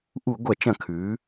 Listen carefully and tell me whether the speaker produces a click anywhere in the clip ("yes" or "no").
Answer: no